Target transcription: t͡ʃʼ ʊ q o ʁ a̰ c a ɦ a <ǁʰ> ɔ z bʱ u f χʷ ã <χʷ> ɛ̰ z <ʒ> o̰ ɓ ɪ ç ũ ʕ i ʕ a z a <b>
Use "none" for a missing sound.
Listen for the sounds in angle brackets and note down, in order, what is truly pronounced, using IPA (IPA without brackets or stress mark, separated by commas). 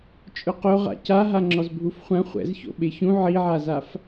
ŋ͡ǁ, χʷ, ç, f